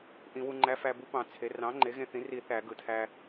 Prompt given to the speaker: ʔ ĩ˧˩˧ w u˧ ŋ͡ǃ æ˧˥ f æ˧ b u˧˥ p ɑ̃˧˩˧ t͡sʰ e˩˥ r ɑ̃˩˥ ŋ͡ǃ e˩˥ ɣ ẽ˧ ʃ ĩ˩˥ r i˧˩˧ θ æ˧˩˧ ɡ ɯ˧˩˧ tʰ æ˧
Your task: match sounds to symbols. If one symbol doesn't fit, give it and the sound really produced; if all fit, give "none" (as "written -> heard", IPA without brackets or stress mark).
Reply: ʃ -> θ